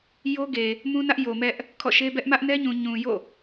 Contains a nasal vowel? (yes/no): yes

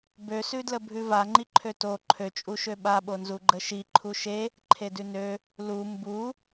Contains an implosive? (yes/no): yes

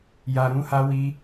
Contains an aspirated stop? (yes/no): no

